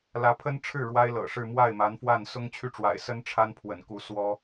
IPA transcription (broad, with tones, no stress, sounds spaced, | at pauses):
l ä˧˥ pʰ ə˥ n ʈ͡ʂʰ ɻ̩˥˩ ɻ w a˥ ɪ̯ l ɤ̰˨˩ ʂ ɻ̩˥˧ m w a˥˩ ɪ̯ m a˧˥ n f w a˥˩ n s ʊ˥ ŋ t͡ɕʰ y˥˩ ʈ͡ʂ w a̰˨˩ ɪ̯ s ə˥ n ʈ͡ʂʰ a˥ n pʰ w ə̰˨˩ n k u˧˥ s w ɔ˥